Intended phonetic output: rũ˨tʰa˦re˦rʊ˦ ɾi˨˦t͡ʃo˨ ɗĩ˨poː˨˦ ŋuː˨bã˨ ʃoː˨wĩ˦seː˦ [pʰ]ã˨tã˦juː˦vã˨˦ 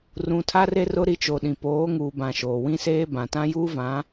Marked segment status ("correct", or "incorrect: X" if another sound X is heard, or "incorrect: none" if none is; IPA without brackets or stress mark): incorrect: b